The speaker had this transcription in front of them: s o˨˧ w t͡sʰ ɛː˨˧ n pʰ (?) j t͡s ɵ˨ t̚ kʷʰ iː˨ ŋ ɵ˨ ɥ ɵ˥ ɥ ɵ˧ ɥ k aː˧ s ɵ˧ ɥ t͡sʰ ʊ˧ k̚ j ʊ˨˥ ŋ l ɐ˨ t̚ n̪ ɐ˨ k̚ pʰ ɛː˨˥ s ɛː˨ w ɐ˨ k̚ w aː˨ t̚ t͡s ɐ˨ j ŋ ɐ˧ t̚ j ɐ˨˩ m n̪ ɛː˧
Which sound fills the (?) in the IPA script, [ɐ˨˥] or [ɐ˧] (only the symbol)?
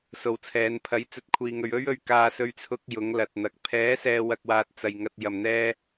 ɐ˨˥